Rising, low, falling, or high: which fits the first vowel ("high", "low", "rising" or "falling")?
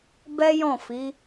high